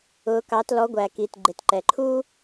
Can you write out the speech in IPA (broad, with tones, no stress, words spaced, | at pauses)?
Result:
ʊ˩˥kɑ˩˥t lɔ˩˥ɡʷæ˩ki˩t ɡ͡ǃɪ˩t ǃɛ˩ ǃʰu˥